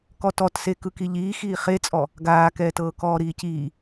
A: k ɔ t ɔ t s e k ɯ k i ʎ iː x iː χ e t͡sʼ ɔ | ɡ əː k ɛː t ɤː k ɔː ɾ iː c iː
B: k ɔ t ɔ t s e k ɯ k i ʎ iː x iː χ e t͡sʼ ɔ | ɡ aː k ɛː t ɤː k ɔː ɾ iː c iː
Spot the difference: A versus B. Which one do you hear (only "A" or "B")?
B